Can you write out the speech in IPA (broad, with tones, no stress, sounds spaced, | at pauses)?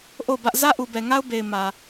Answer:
ʔ o˦˨ ʊ̯ b ä˦ ʔ z ä˦ ʔ u˨ b ɛ˨ ŋ a˦ ʊ̯ b e˨ ɪ̯ m ä˨